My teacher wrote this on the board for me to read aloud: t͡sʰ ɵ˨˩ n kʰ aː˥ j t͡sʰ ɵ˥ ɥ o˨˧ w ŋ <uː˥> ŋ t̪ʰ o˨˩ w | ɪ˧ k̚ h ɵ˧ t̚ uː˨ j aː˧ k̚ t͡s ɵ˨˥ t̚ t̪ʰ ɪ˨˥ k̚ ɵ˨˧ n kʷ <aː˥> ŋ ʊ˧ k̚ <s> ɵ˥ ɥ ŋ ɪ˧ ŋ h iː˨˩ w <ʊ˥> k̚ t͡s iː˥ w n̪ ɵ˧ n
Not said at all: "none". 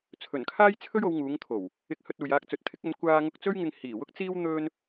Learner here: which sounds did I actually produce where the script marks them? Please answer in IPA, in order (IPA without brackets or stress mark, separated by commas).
uː˨˧, aː˧, t͡s, ʊ˥